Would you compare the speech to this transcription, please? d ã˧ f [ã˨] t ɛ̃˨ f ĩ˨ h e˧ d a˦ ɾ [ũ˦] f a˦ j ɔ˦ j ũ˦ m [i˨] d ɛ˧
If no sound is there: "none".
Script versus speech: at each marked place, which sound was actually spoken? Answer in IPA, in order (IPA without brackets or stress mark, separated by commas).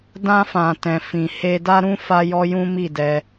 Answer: ã˨, ũ˦, i˦˨